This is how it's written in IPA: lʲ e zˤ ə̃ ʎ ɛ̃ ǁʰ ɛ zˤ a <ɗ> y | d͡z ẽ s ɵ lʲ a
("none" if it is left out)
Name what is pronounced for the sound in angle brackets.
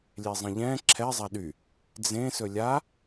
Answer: ɗ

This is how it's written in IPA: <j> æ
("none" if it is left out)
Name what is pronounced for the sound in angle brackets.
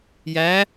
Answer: j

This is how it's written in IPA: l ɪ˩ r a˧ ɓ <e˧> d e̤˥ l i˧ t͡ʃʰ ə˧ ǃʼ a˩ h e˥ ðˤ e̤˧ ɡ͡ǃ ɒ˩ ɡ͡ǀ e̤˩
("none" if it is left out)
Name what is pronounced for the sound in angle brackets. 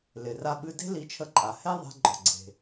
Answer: ɨ˧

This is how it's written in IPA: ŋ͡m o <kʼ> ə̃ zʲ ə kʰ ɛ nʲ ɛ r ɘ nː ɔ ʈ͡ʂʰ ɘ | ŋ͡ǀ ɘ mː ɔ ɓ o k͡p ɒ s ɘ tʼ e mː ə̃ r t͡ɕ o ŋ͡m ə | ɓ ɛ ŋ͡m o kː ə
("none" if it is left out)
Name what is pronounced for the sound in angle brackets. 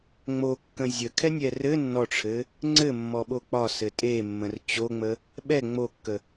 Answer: kː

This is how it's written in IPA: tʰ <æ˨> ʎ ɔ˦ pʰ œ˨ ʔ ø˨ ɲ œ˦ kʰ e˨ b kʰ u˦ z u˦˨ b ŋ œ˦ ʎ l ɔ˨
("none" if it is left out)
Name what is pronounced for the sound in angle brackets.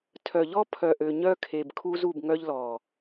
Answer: œ˨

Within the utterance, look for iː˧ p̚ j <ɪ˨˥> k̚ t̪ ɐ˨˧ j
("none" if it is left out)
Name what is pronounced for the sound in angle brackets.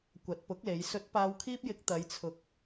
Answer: ɪ˨˥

